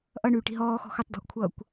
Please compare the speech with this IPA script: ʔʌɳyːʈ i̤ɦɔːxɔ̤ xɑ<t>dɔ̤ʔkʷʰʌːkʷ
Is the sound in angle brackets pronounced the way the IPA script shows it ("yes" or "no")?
yes